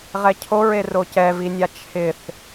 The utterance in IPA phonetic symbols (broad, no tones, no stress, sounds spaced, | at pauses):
ʁ ɛ cʰ o ɹ e r o c ɛ v i nʲ a t͡ʃʰ ɪ θ